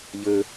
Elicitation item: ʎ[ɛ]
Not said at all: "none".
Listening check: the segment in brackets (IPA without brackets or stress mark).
ɘ